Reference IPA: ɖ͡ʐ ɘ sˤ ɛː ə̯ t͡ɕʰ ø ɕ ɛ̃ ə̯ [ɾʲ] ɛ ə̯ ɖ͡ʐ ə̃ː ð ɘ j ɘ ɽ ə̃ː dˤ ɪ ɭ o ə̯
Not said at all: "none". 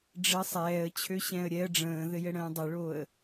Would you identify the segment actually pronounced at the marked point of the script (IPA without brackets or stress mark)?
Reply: ɾʲ